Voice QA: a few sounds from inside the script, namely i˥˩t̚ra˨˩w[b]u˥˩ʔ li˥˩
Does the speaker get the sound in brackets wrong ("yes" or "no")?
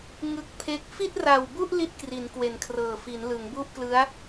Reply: no